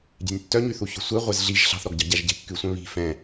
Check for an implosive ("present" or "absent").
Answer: absent